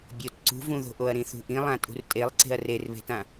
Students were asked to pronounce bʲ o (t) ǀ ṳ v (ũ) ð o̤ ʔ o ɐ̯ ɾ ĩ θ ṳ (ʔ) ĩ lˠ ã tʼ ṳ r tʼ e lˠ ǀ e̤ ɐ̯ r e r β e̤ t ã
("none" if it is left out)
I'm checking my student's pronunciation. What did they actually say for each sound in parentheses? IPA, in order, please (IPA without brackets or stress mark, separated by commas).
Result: t, ũ, ʔ